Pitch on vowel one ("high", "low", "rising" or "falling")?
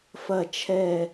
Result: falling